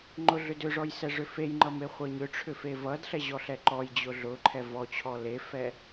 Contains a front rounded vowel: yes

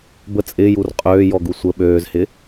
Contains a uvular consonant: yes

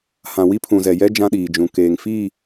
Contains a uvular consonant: no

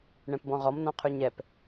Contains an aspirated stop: yes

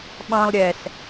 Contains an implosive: yes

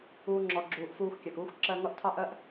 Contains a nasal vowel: no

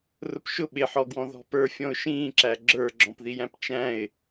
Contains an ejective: no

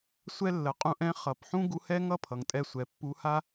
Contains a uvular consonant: yes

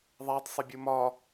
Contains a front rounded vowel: no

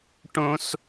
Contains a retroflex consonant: yes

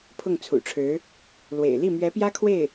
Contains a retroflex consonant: yes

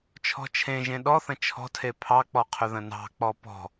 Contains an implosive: yes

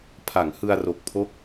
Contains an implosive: no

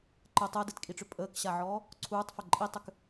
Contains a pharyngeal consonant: yes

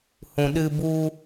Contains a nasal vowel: yes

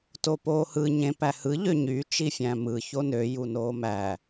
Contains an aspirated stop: no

